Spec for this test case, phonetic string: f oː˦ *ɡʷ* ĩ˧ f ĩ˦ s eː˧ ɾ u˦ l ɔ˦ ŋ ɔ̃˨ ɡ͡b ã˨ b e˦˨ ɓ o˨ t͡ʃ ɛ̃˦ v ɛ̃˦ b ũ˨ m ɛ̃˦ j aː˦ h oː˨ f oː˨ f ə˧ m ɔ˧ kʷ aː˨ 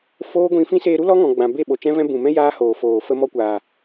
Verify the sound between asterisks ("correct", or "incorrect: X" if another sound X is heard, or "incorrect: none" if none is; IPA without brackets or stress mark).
correct